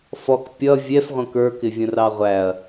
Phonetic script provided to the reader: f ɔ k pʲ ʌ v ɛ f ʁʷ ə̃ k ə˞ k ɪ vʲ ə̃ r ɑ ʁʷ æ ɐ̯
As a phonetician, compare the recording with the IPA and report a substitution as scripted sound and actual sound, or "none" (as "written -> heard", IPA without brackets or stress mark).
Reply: v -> vʲ